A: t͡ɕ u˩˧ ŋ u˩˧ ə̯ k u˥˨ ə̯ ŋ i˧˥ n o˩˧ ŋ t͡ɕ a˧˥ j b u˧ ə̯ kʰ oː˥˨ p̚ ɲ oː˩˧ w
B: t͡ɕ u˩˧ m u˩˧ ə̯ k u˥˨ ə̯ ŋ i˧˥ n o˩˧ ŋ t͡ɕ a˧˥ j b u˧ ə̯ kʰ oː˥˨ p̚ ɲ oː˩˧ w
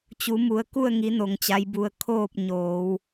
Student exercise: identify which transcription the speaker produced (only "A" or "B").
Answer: B